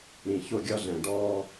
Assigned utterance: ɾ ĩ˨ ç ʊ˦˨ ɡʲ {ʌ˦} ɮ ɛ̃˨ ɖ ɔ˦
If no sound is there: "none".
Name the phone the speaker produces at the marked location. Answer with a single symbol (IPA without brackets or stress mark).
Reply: ʌ˦